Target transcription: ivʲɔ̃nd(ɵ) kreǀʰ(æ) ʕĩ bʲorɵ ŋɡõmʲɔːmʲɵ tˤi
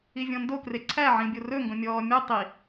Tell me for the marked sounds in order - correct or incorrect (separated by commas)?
incorrect, correct